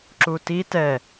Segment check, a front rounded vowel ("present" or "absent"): absent